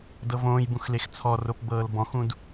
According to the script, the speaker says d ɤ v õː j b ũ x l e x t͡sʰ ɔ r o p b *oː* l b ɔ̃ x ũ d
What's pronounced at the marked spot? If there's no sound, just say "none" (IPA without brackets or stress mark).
ɤː